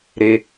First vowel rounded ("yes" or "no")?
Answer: no